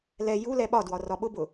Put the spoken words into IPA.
lɛ ju lɛɓɒdwɒ rɒɓʊbʊ

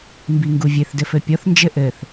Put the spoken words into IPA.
mbiŋɡuvʲɘθ dɘfɘpʲɔθ nd͡ʒɘʔɘθ

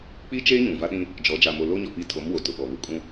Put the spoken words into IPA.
k͡pi˦t͡ʃeː˦ ɲũ˨va˦ɗĩ˦ | d͡ʒɔ˨˦ d͡ʒa˨mo˨ lo˦ɲɔ˨pi˦˨ tʰo˨˦mwo˨ tʊ˨ɓɔ˨ βu˨kʼũ˦

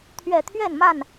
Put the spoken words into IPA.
t̪ʰɥɛ˨˩t̪ʰɥɛ˥˨nma˥˨n

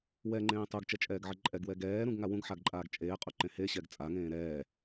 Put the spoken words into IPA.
wɛŋ͡ǃẽː tˤuɡt͡ʃɛt͡ʃʼɛːɡʕɘ ǃʼɛɡwɛ ɡɛːɾũɡŋa wũɡħaɡǃʼaːɡ t͡ʃʼeːqʼuǃẽ heɕɛɡ t͡sʼaŋẽː ɾɛː

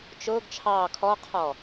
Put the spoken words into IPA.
t͡ʃʊːɡ t͡ʃʰɑː kʰɔqʰɔ

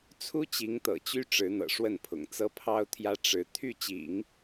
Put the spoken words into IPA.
t͡sʰu˥ t͡ɕi˧˥ŋt̪ɤ̰˨˩ t͡ɕy˥ ʈ͡ʂɻ̩˧˥n̪ɤ̰˨˩ʂwə˥˩npʰʊ̰˨˩ŋ t͡sɤ˥pʰɑ˥ʊ̯t̪ʰjä˥ ʈ͡ʂɻ̩˧˥ t̪ʰy˥˩t͡ɕḭ˨˩˦ŋ

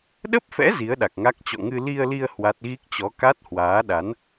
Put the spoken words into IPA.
ɗə˦˥p̚fɛ̰˧˥ zi˨˦ə̯ɗa˨˩k̚ŋa˦˥k̚ t͡ɕɔ̰˧˨ŋɨ˧ li˧ə̯li˧ə̯ hwa˦˥t̚ ɣi˦˥k̚t͡ɕɔ˨˦ ka˦˥t̚hwaː˨˦ɗa˨˦n

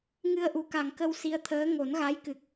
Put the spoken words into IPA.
ŋɨ˧ə̯ʔu˨˩ka˨˩ŋkə˧w si˧ə̯t̪ʰəː˧˥ ŋo˨˩˦nɣa˧˥jkɨ˨˩k̚

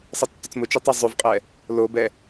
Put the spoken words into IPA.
sˤʌtːʊt͡smʊt͡ʃu tˤʌzˤʉvqʼɛ | lobɛ

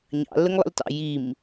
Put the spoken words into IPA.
ɲɑ̰lːəŋlˠə̰ltɑ̰ jim

